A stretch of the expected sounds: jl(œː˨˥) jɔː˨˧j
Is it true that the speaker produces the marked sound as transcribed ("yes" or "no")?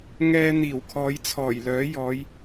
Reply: yes